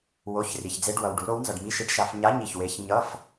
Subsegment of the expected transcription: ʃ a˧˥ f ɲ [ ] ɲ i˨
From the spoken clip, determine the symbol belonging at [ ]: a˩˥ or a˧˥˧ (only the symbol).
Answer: a˧˥˧